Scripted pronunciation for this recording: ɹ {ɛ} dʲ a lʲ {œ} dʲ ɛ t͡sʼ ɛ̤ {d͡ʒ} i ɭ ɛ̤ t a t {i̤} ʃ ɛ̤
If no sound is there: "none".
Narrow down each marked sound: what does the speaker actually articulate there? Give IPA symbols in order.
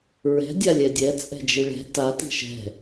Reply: ɛ̤, ɛ, d͡ʒ, i̤

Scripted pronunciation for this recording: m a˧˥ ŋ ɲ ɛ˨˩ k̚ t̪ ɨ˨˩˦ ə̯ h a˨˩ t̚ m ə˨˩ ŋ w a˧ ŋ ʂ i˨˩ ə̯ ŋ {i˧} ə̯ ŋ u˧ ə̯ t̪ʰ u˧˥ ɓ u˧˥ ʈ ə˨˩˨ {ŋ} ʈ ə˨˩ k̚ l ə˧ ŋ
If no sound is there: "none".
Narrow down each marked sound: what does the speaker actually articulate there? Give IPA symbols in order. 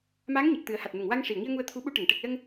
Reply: i˧, ŋ

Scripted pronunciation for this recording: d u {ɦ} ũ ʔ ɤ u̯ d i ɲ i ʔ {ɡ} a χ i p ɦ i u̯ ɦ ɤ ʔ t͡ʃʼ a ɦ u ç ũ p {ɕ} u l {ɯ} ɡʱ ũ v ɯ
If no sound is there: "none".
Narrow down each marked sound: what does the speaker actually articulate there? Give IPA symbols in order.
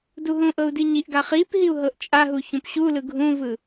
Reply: ɦ, ɡ, ɕ, ɯ

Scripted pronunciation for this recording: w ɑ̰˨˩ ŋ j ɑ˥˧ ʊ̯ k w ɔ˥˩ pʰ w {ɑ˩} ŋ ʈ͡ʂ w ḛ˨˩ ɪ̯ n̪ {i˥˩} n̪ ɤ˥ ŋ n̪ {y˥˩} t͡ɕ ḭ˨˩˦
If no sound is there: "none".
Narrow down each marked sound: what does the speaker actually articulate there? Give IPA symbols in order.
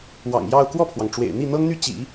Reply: ɑ˩, i˥˩, y˥˩

